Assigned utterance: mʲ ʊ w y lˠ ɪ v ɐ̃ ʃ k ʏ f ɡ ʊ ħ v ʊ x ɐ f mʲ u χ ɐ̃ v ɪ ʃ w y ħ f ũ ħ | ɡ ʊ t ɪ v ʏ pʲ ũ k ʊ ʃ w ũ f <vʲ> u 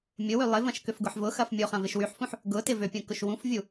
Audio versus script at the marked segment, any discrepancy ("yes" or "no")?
no